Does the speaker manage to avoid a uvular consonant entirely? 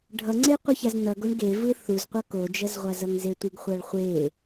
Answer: no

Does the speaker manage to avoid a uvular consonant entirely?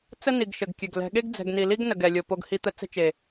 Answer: yes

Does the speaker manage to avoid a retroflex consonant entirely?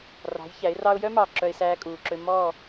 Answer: yes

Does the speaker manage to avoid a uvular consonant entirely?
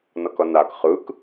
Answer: no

